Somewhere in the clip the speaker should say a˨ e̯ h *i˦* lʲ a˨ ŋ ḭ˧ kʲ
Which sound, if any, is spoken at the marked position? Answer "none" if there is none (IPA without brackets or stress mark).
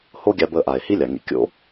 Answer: i˦